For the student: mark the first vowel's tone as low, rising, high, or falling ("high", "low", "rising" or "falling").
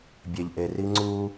low